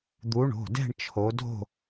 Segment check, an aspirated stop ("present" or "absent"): present